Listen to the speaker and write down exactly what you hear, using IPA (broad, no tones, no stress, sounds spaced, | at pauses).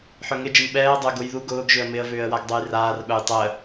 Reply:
ħ œ ŋ ɪ d͡ʒ ɪ m ɓ ɛː ə̯ dˤ ʊ ə̯ ɡ ʊ j ð u ɡ ʊː ɡ ʒ ʏ ə̯ m ɪ ə̯ v ʏː ə̯ w a ɡ dˤ o j r aː r ɓ œ j tˤ ə